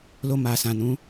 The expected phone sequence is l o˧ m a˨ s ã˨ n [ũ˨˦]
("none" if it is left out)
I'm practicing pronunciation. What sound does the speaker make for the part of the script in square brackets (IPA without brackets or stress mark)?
ũ˨˦